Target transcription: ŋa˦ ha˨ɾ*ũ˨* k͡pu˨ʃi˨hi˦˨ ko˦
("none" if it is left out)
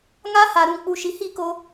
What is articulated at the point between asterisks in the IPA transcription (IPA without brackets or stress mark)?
ũ˨